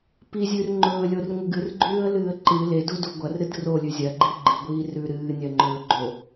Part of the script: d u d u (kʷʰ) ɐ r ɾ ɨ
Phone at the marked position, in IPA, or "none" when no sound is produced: ɡʷ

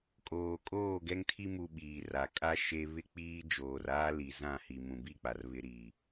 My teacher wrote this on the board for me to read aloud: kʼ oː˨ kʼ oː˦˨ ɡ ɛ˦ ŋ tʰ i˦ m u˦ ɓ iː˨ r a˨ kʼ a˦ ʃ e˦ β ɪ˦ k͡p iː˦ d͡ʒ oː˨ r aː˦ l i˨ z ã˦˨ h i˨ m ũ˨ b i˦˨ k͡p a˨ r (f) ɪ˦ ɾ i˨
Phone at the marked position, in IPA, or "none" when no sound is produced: β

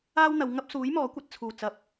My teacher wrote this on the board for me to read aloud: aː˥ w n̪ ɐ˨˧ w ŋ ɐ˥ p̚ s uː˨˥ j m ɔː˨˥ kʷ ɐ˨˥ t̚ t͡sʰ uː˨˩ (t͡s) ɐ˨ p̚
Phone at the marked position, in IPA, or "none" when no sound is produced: t͡s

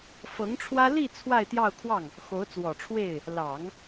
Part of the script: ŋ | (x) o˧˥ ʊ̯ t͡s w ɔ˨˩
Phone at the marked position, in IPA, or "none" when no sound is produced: x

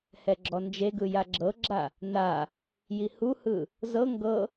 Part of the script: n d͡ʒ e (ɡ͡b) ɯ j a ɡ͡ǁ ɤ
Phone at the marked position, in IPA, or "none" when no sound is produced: ɡ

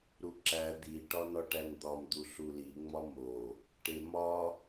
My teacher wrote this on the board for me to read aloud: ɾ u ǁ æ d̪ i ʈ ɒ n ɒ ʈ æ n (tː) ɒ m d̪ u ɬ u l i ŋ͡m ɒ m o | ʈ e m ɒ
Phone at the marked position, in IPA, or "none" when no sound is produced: d̪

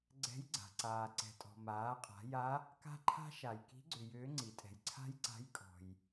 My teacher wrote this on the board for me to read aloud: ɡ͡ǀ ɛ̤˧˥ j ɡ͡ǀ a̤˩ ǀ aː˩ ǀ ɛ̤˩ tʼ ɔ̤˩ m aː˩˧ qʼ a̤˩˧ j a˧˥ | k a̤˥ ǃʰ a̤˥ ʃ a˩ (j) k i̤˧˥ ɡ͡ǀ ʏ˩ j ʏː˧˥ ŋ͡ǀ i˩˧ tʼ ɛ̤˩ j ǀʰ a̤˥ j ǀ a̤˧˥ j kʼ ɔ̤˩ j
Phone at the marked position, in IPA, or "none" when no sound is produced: j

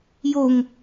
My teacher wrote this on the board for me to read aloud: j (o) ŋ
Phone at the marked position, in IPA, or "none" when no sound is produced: o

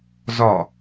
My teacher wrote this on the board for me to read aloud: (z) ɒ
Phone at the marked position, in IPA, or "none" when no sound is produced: z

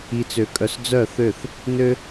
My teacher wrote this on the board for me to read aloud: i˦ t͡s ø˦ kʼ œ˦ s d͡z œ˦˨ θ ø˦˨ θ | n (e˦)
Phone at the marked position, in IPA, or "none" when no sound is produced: ø˦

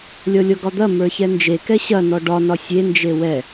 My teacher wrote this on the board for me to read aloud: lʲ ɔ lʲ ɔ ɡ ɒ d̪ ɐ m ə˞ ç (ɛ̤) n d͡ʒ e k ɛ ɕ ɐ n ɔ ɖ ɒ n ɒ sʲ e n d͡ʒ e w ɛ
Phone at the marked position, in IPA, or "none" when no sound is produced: ɛ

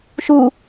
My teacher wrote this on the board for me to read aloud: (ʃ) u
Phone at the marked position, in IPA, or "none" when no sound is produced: ʃ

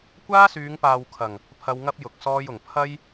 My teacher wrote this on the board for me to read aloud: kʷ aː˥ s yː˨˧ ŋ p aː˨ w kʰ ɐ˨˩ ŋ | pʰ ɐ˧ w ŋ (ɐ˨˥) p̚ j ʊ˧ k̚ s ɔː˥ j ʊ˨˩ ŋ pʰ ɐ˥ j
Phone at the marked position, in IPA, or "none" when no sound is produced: ɐ˥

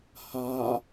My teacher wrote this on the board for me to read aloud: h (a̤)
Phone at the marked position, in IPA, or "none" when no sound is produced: a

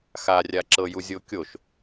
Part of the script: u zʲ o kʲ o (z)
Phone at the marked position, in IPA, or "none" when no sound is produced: ʃ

